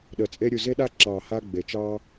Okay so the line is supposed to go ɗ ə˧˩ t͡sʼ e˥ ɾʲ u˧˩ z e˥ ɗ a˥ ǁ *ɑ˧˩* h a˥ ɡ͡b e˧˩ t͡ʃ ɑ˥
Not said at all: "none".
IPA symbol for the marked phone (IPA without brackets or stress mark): ɑ˧˩